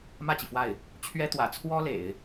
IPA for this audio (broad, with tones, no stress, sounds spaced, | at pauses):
m ä˥˩ t͡ɕ i˩ f w a˥˩ ɪ̯ | t͡ɕʰ ɥ ɛ˥ t̪ w ä̰˨˩ t͡sʰ w ɔ˥ l ḛ˨˩˦ ɪ̯